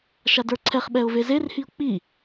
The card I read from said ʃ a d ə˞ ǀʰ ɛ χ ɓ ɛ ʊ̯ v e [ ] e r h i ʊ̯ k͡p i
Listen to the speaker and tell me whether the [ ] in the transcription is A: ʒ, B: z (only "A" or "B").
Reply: B